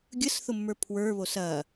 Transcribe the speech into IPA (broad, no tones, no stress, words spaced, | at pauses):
ɡʲəsθʊmːə˞ pʰwə˞βos ɐ